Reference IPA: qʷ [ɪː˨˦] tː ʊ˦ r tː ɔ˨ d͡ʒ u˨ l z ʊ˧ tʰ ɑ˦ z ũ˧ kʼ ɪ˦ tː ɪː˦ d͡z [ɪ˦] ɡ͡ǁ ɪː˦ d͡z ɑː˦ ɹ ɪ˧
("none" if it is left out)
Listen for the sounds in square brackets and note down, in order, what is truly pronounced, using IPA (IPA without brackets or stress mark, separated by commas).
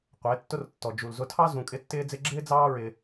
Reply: ɪː˨˦, ɪ˦